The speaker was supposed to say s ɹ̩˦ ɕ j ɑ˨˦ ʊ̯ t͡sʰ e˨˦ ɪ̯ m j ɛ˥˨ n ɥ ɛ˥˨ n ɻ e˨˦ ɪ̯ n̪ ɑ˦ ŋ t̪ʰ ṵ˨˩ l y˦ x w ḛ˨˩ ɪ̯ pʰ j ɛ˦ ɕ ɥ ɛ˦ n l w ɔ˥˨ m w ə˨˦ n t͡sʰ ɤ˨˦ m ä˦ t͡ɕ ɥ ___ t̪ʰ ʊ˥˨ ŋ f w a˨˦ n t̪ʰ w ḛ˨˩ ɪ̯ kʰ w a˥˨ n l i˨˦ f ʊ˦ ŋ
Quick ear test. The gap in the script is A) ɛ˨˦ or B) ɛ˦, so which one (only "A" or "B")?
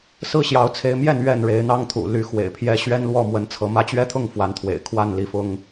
B